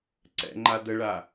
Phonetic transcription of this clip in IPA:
ǀɛ̰ŋ͡ǃa dəɭa

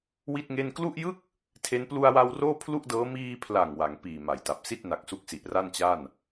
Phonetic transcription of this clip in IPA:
wi˥˩t̚ŋe˥˩n klu˥˩ʔjɯ˥˩k̚ | tʰe˦˥n plu˧a̯wa˧w roː˥˩pʰlu˥˩ʔdɤː˦˥ miː˧pʰla˨˩ŋ wa˩˦ŋpiː˨˩ ma˩˦jta˨˩p̚si˥˩t̚ na˨˩k̚su˦˥k̚si˨˩ʔ ra˥˩nt͡ɕa˥˩n

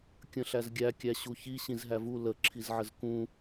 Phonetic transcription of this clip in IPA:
kʲə̃ɬæzɡʲæ kʲæɕuçi ɕĩzɦævu lə ǁʰizʕəzkũ

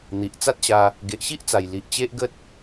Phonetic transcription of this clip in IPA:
n̪i˨ʔ t͡sa˦t̚ɕa˧ | ɡe˨ʔɕi˦ʔt͡sa˨˩j li˨ʔt͡ɕe˦ʔɡə˦t̚

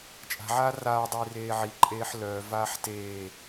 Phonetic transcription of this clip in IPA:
t͡ʃʼa̤ʕaː raːdˤiː reːʕiǃʼeːħ lœːvaːħ teː

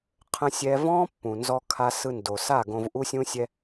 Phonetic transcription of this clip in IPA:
qʰə̃˦ sʲɛ˦ vɔ̃ː˦pːũ˨nzɔ˧ kʰa˧sɯ˧ndo˨ sa˦˨ɡõ˧v ʔu˦sʲũ˦sʲɛ˦

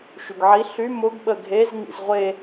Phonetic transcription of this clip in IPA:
ʃyɡʕi ɬy mʊɡ ɓəɡʱez ŋḭzʁʷe

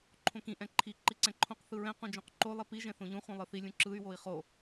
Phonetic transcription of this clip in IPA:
ǃʰõkĩ ʔɛ̃ǃʰi ǃiǀɛ̃ǃʰõq θɯɹɛ̃ qũd͡ʒõqǃo lˠipi ʒɛ̃θõʎũ χʷĩlˠɯθi lʲũǁɯy̯ woi̯χo

